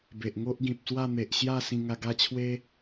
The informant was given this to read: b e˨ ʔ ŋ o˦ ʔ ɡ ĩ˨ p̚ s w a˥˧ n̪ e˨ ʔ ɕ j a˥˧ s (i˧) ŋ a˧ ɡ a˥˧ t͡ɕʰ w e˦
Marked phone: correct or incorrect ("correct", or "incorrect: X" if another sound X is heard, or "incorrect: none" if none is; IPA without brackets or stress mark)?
incorrect: ĩ˧